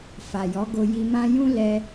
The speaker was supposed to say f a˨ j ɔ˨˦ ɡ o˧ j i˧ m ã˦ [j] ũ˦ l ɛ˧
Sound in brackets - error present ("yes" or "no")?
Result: no